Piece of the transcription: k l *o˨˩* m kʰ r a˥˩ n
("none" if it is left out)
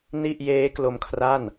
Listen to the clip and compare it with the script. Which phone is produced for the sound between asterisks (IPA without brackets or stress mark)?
o˧